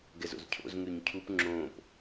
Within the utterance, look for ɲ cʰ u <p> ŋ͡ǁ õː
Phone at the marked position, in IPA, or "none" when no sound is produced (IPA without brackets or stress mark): p